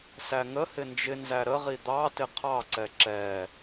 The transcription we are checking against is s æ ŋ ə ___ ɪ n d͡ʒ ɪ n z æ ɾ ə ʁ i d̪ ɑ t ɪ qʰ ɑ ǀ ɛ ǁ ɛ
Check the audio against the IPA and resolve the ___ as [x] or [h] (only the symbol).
h